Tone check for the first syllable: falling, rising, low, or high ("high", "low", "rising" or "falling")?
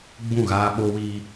falling